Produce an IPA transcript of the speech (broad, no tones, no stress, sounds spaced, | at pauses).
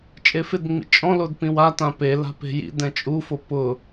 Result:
t͡ʃʼ e f ɪ d ŋ͡m ḭ t͡ʃʼ ɔ̃ l o d p ĩ w a t ã p e l a̤ p e̤ j ḭ d ɛ̃ t͡ʃʼ u f o p ʊ